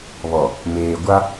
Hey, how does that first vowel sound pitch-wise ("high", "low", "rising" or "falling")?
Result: low